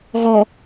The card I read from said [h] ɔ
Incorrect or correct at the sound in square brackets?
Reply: incorrect: ɣ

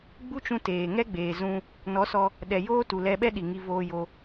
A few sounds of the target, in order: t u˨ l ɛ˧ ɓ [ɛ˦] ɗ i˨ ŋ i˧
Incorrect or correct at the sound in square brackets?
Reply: correct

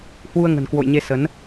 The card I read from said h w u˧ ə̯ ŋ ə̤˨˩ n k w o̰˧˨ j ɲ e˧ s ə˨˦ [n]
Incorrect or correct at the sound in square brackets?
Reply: correct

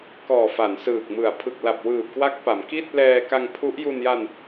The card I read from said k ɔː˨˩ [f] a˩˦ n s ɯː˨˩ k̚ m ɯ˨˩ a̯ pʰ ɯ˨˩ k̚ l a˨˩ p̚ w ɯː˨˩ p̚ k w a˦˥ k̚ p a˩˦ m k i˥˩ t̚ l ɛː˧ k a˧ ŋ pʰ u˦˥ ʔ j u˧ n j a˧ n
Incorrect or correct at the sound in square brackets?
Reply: correct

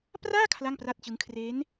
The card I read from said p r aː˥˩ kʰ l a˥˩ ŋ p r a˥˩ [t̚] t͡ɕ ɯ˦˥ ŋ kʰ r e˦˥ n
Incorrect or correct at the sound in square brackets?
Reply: correct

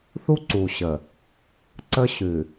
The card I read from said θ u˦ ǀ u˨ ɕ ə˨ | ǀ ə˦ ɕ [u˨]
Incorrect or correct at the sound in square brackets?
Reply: incorrect: ʉ˨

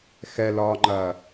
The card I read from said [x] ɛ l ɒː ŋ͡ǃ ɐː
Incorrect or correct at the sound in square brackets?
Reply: correct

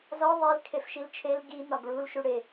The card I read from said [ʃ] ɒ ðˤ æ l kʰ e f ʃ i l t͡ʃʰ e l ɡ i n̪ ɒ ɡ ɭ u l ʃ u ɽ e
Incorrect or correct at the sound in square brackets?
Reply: incorrect: z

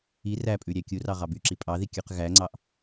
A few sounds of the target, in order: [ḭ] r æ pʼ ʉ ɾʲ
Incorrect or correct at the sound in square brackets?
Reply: incorrect: i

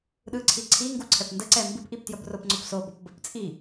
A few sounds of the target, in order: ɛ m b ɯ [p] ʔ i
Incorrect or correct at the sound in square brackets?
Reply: correct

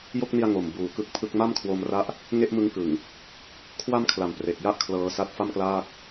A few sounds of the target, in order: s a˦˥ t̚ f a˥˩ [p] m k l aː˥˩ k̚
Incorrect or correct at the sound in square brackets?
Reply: incorrect: none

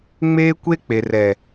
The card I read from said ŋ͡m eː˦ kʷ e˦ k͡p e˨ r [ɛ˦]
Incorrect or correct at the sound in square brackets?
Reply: incorrect: ɛ˨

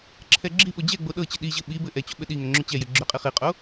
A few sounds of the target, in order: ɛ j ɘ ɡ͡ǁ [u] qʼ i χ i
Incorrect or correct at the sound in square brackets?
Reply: incorrect: ʏ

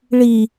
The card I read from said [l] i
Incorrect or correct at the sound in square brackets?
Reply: incorrect: ɭ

